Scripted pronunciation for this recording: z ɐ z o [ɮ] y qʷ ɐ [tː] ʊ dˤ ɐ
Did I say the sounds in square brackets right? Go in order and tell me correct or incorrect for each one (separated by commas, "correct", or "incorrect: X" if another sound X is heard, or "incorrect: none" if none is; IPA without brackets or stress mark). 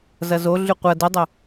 correct, incorrect: d